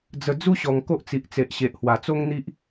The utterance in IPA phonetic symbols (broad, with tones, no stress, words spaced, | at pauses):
d͡zə˨˩ d͡zu˦ɕɔ˨˩ŋ ko˦ʔt͡si˨ʔt͡se˨ʔ ɕe˨ʔhwa˨˩t͡so˦ŋn̪i˦ʔ